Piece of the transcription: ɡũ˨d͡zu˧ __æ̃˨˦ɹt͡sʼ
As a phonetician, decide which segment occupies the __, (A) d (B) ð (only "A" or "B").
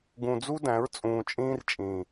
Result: A